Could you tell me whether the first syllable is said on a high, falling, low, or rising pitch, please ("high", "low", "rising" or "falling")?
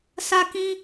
high